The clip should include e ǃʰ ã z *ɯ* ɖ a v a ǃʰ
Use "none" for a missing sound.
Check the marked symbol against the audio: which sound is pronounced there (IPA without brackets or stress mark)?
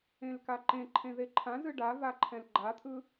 ɯ